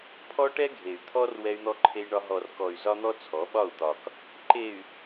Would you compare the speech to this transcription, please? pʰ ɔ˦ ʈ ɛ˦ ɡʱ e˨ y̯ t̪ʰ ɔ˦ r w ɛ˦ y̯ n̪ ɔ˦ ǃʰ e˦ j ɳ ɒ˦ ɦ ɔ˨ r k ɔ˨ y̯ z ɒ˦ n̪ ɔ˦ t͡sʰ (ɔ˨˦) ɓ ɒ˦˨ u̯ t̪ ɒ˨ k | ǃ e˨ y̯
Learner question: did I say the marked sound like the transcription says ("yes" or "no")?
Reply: yes